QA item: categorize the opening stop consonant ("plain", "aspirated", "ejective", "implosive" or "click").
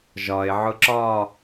click